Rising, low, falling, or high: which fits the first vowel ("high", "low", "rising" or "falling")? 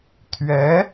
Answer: rising